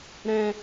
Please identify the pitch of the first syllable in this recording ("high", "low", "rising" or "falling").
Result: high